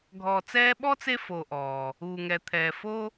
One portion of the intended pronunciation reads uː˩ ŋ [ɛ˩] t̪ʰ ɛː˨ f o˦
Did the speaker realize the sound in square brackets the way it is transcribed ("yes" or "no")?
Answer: yes